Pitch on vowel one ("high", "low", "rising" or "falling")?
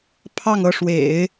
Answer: falling